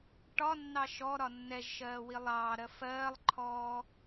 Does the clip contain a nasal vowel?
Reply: no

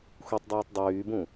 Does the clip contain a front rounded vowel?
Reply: yes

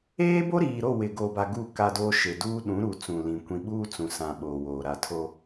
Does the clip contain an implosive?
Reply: yes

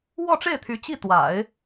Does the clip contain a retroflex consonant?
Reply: yes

